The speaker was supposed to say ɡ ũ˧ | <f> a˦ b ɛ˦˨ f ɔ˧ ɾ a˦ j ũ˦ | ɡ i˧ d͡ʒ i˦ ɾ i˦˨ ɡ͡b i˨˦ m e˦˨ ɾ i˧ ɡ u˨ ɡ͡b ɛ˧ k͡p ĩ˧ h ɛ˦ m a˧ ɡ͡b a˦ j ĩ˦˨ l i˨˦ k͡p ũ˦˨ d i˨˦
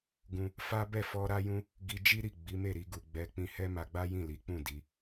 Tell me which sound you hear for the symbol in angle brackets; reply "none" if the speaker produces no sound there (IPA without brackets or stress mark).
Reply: f